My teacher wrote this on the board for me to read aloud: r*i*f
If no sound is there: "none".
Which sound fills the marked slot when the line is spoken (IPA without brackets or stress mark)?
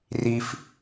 i